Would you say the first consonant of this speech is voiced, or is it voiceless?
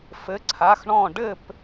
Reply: voiceless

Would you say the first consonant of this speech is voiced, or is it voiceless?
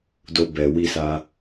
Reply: voiced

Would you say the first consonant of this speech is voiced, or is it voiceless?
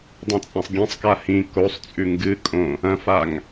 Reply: voiced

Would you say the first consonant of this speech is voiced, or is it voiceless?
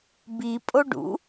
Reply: voiced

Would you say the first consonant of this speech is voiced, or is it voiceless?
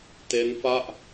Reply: voiceless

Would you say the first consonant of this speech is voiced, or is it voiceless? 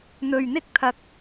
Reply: voiced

